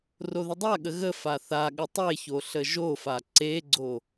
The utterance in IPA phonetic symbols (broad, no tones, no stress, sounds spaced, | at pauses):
r o ð ə dˤ a ɠ ə ɣ ə f a θ a ɠ ə tˤ e ç o ɬ ə ʒ o f a ǀ e ɡ͡ǀ o